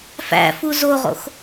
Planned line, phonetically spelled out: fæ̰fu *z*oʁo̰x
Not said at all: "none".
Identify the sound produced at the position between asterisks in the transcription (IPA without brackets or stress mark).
z